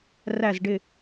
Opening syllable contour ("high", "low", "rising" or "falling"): falling